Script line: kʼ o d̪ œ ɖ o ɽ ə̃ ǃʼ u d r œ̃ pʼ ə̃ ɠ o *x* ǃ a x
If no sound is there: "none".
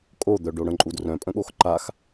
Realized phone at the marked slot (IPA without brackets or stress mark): x